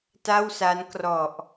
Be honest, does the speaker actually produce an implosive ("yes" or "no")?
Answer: no